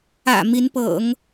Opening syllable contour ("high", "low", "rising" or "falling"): low